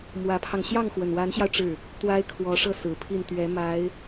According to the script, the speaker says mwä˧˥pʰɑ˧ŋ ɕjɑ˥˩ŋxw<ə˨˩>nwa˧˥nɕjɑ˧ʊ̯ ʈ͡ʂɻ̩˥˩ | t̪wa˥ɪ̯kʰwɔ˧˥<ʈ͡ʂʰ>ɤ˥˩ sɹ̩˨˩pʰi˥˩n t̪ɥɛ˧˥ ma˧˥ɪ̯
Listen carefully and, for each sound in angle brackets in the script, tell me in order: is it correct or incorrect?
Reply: correct, incorrect: ʂ

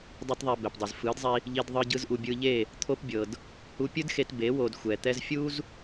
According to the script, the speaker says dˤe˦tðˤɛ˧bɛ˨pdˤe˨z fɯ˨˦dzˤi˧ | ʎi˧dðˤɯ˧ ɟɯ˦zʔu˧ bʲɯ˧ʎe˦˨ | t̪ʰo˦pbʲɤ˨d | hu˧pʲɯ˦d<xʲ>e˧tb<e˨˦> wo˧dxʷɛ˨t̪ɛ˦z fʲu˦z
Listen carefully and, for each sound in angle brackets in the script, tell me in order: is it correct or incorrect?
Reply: incorrect: x, correct

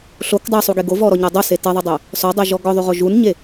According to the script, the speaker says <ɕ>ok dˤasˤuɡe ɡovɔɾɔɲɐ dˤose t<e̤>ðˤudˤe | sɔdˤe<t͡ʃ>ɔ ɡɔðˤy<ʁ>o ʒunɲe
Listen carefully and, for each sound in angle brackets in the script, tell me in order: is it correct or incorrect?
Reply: incorrect: ɬ, incorrect: e, incorrect: ʒ, correct

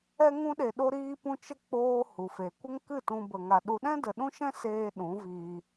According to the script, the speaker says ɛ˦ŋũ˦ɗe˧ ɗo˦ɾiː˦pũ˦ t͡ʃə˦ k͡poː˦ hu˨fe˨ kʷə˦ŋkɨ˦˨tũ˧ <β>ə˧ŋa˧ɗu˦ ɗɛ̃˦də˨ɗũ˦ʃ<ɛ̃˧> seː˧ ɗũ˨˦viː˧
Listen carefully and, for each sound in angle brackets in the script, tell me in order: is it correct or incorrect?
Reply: incorrect: b, incorrect: ɛ̃˦

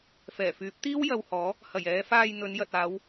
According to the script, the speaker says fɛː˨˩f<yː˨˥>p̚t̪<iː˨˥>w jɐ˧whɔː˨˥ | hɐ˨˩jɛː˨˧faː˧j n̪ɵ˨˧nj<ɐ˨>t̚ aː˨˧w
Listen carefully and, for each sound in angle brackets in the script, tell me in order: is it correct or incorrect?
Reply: correct, incorrect: iː˥, correct

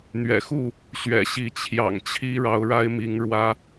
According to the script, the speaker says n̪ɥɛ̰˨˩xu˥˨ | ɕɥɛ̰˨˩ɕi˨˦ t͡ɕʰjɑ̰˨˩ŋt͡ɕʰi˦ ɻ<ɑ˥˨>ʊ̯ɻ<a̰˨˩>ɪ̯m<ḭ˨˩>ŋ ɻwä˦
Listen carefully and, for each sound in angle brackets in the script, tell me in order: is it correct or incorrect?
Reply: incorrect: ɑ˨˦, incorrect: a˦, incorrect: i˨˦

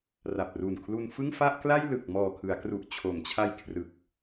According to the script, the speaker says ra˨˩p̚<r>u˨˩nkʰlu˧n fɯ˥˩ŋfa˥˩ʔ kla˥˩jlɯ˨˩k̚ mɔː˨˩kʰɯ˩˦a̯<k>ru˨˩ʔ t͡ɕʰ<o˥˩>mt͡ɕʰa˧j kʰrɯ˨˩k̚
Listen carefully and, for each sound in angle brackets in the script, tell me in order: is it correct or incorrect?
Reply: correct, correct, incorrect: o˩˦

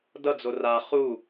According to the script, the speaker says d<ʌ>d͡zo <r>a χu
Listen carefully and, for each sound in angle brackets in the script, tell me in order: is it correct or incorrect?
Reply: correct, correct

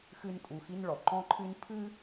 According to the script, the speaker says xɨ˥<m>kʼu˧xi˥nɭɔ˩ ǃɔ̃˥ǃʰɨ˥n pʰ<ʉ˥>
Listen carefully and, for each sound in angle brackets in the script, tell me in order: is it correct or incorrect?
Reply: incorrect: n, incorrect: ɨ˥

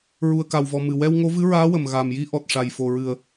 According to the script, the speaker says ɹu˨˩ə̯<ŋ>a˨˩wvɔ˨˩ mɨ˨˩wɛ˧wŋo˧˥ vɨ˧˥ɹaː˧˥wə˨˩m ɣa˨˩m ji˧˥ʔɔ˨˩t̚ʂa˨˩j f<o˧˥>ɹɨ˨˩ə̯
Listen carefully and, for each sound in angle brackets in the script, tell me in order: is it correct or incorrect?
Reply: incorrect: k, incorrect: o˨˩

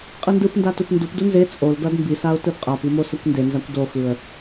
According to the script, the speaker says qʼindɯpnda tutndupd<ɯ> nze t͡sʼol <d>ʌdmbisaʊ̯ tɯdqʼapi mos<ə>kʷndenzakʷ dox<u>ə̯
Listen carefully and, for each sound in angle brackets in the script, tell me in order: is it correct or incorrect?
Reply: incorrect: u, correct, incorrect: ʌ, incorrect: ɯ

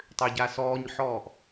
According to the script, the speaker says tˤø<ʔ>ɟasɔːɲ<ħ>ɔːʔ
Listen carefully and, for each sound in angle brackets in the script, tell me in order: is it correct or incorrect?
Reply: incorrect: none, correct

